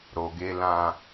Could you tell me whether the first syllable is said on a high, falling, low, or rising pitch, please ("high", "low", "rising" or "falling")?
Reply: low